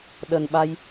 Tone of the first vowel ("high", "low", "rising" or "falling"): low